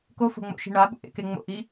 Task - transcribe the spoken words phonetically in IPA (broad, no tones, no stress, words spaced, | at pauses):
kofo̤ŋ͡mo̰ʃi̤ ɳaɓṵʔḛke ŋ͡mo̰ʔi